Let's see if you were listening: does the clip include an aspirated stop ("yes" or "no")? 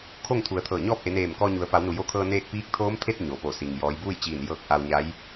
yes